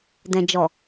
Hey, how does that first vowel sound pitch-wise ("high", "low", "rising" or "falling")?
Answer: low